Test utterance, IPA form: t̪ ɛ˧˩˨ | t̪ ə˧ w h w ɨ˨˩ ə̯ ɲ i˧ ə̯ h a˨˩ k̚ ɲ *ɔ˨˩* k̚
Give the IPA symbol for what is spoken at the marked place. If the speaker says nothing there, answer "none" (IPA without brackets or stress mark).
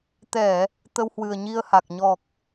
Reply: ɔ˨˩